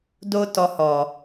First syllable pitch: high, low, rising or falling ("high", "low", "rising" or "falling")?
high